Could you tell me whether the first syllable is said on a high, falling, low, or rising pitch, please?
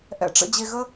low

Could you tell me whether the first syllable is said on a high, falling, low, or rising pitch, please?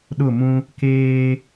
falling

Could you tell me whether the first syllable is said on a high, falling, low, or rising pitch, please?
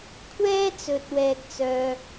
high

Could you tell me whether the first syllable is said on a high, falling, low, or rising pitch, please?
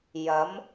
rising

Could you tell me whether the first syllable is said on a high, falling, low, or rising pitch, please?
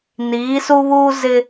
rising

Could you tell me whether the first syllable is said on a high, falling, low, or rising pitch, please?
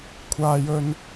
high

